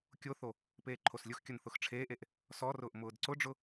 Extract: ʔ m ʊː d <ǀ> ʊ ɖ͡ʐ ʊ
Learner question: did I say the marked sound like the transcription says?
yes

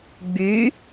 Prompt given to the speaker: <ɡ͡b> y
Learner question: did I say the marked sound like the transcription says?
yes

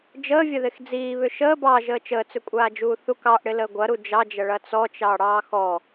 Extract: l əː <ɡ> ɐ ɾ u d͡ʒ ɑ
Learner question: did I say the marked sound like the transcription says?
no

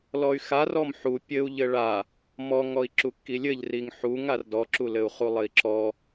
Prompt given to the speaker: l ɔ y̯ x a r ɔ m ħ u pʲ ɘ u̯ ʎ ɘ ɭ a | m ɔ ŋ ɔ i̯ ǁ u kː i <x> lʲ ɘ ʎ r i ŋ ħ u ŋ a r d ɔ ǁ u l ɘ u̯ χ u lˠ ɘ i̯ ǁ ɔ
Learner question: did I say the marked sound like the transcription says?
no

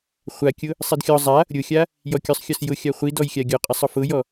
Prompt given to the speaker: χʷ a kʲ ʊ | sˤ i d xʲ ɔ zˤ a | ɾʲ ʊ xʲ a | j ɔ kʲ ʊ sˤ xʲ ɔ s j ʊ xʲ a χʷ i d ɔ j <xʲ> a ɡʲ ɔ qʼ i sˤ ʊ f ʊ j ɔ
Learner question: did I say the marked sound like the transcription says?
yes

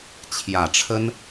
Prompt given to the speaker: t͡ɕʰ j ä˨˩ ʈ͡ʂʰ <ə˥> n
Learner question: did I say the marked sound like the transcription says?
yes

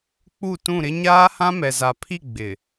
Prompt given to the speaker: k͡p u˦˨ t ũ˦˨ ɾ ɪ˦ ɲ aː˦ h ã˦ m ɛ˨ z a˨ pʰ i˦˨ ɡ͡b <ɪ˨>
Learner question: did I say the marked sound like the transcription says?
yes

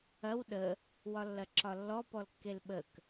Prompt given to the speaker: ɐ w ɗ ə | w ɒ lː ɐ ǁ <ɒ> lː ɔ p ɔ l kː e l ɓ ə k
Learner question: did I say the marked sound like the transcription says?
yes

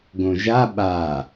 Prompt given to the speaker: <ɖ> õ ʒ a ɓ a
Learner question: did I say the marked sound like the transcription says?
no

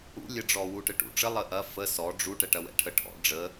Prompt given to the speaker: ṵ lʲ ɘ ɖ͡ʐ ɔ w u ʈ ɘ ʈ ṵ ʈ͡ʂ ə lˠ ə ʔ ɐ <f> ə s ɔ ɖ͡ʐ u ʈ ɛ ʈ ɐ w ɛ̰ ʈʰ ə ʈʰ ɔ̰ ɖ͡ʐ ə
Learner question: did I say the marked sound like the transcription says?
yes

